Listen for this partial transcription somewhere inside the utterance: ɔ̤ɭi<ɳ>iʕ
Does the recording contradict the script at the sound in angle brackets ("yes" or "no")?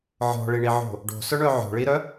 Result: no